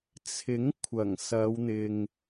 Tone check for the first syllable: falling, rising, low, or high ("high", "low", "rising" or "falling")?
rising